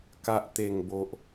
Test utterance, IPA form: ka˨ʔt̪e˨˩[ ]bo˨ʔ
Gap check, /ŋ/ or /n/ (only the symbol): ŋ